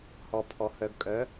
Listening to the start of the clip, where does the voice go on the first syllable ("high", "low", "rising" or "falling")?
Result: low